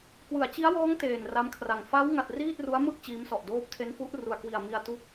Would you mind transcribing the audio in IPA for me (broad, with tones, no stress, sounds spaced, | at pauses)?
k w ɯ˩˦ a̯ t͡ɕ i˦˥ a̯ w ɔː˦˥ ŋ t eː˨˩ n r a˦˥ m kʰ r a˨˩ ŋ f a˦˥ w ŋ a˨˩ t̚ r iː˥˩ t̚ r u˦˥ a̯ m ɯ˥˩ k̚ t͡ɕ iː˦˥ m s ɔ˨˩ ʔ d oː˦˥ p̚ tʰ e˦˥ n f u˦˥ ʔ r u˨˩ a̯ k w i˨˩ a̯ m i˧ a̯ t u˦˥ k̚